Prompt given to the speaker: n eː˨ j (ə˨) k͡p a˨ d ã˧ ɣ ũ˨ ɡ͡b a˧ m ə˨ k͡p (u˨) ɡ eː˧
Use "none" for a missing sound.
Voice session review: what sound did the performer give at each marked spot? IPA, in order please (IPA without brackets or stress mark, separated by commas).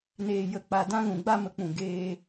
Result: ə˨, ũ˨